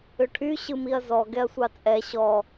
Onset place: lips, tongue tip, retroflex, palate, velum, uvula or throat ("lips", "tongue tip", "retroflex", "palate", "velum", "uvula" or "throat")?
retroflex